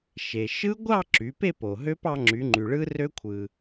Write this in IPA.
ʃe˩ ʃɯ˦˥ɡʷɑ˥˧ ǁy˩˧pe˥˧po˩ ɦø˦˥p ɑ˧ŋ͡ǁy˩˧ŋ͡ǃy˩ ɭɯ˦˥rø˦˥kʷʰɯ˩

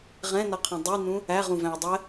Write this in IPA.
ʁɛ̃nʌqʰũ dˤinũ | æʁũvæ̃u̯ dˤɛ

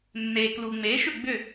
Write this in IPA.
nːeː˩kluː˩ŋ͡meː˩˥ʃʏ˥˩ ɡ͡bʏ˥˩

